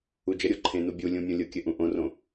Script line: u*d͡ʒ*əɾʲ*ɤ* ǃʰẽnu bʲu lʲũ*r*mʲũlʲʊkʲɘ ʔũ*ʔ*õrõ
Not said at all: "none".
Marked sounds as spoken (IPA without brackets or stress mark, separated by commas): d͡ʒ, o, none, ʔ